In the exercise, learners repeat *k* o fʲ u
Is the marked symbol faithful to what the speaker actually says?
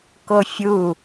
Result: yes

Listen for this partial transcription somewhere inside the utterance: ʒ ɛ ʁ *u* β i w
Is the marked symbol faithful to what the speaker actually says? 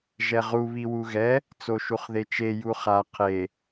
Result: yes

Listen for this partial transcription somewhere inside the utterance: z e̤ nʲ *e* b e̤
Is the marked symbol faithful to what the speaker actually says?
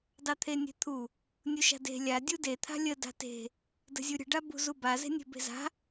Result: no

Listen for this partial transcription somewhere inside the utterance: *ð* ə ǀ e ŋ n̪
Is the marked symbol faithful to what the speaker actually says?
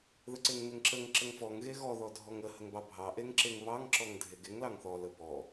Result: yes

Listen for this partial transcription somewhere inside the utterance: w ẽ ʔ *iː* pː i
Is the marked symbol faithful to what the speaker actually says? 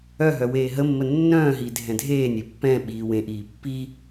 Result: yes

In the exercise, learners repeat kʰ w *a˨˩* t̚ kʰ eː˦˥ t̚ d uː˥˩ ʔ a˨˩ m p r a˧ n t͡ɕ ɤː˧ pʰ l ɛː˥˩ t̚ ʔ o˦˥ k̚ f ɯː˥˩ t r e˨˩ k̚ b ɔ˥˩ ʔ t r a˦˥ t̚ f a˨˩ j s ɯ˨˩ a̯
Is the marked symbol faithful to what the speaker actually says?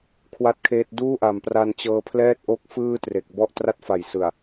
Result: no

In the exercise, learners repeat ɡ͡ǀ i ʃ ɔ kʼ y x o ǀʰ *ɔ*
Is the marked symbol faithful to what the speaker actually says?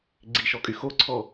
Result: yes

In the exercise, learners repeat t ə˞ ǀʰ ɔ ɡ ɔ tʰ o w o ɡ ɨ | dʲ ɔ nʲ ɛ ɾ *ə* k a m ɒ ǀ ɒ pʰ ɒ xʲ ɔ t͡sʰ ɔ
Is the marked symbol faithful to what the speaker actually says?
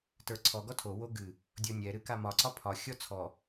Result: no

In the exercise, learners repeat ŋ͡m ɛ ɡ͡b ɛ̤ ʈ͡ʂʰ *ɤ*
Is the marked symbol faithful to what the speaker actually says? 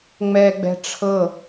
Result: yes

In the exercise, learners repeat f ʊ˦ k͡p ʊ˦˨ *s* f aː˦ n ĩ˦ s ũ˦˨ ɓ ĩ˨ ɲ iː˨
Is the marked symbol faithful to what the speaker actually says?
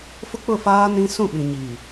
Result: no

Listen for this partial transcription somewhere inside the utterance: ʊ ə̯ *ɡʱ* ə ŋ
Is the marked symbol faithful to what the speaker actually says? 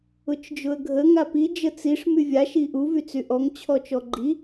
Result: yes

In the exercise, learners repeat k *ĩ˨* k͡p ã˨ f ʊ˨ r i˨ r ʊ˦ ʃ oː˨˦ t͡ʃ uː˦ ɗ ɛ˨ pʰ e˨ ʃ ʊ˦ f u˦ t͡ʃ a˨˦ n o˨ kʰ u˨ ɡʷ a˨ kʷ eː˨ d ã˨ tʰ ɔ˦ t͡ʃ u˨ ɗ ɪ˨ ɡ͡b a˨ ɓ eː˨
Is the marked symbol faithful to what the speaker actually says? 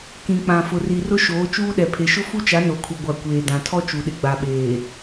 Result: yes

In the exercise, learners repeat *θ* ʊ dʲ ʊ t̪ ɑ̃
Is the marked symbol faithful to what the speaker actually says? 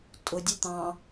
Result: no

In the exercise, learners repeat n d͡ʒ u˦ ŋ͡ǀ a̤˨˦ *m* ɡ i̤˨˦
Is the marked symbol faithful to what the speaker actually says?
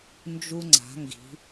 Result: no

